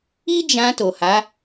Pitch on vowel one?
high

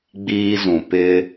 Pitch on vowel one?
high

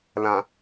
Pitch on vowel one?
low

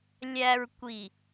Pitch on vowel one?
low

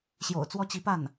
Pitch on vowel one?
low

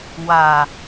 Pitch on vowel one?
low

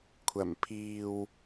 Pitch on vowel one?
low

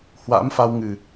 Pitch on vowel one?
rising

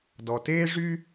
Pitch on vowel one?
low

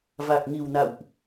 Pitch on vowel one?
low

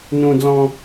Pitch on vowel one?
high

